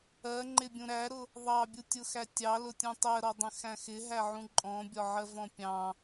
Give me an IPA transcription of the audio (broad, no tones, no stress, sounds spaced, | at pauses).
ɜ ŋ͡ǃ ɪ bʲ ũ ɾ æ ɾ ʊ | ðˤ ɑ bʲ u tʲ ʊ x æ tʲ ɑ l ʊ tʲ ũ tˤ ɜ ɾ ɔ dˤ ə̃ x æ̃ x ɪ ɦ æ ʕ ũ ǃʼ ɔ̃ bʲ ɒ ʕ ɜ v ɔ̃ pʲ ɑ̃